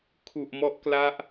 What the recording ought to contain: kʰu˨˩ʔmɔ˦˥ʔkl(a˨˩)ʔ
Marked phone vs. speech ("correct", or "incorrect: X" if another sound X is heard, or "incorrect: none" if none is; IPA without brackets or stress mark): incorrect: a˦˥